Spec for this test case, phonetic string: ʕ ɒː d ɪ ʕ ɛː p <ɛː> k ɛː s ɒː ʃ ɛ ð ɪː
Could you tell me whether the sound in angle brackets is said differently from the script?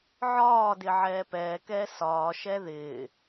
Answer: no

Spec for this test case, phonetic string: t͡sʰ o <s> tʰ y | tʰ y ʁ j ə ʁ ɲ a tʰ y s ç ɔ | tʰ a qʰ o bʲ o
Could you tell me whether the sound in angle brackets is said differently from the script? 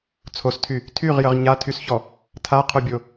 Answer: no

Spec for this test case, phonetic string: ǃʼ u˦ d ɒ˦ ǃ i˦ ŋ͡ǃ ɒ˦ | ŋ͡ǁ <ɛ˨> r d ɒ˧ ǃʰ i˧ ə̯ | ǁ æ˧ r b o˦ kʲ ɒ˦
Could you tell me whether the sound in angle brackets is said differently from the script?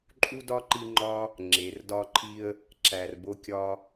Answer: yes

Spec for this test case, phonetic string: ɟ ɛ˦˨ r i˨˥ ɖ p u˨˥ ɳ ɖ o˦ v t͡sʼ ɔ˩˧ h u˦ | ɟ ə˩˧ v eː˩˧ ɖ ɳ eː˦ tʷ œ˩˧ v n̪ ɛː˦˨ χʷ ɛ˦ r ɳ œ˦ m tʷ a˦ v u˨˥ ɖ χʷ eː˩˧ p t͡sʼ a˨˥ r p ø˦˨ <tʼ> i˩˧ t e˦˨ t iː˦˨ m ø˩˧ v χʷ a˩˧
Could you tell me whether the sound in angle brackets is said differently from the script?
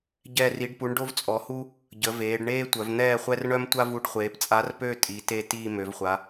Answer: no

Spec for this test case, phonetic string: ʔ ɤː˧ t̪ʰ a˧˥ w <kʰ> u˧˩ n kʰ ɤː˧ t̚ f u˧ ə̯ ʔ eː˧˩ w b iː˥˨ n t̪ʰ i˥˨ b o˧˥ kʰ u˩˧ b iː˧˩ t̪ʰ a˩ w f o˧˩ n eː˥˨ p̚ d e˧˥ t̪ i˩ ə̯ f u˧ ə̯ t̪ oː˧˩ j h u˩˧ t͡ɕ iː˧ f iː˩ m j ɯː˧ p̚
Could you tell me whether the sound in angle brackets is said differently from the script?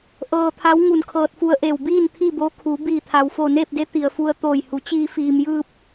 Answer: yes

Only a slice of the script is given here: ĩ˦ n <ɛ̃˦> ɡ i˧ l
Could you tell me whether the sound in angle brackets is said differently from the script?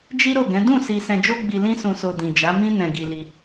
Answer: yes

